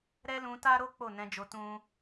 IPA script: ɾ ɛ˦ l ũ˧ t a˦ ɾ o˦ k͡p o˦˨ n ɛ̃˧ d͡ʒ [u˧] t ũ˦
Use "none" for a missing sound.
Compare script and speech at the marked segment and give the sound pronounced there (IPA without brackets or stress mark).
o˧